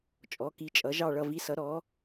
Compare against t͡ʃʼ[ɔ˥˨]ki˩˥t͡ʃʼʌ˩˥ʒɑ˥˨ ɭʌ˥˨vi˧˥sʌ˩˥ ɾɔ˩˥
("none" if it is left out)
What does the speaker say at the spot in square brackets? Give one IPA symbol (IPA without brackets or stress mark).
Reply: ɔ˩˥